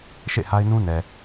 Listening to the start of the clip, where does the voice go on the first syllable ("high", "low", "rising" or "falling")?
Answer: falling